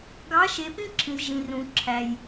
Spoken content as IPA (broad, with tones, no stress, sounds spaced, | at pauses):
ɡ ɑ˨˦ ʃ e˨ p ĩ˦ ǁʰ ĩ˨ z ʒ ĩ˨ r ũ˨ ǁʰ æ˨ j